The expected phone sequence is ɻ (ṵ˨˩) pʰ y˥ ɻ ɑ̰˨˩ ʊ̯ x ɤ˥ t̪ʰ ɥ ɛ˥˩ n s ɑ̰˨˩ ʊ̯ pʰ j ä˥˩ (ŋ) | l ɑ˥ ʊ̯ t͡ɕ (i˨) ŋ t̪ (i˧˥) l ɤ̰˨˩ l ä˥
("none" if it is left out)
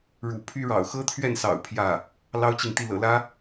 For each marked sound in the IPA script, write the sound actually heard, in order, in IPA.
ṵ˨˩, none, i˨, i˥˩

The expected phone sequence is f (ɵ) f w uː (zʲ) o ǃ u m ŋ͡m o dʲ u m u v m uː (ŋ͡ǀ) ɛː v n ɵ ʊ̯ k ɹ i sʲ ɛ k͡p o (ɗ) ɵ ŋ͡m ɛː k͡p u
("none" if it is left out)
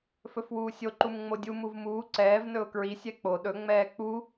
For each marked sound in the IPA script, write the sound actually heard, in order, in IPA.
ɵ, sʲ, ǀ, ɗ

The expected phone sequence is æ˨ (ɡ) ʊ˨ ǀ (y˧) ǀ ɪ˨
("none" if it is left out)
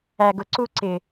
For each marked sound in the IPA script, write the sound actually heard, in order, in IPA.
ɡ, u˧

